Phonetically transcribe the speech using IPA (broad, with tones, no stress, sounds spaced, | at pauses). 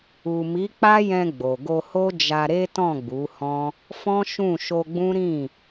u˨ m i˨˦ k͡p a˦ j ɛ̃˧ ɡ͡b o˨ ɡ o˧ h o˦ d͡ʒ a˧ ɾ e˦ t ɔ̃˦˨ ɡ͡b u˨˦ h ɔ̃˦ | f ɔ̃˦ ʃ ũ˦˨ ʃ o˧ ɡ͡b ũ˦ ɾ ĩ˦˨